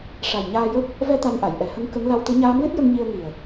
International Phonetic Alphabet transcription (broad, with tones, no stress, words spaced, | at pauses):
ʂa˨˩j ɲaː˧jə˦˥k̚ | vɛ˧ t̪a˧nʔa˨˩˨j ʔɛ˨˩˦hə˧˥ŋ kə˧˥ŋ la˧wt̪ɨ˧˥ ɲaː˧˥mlɨ˦˥t̚jə˧ŋ ɲi˧ə̯ŋi˨˩ə̯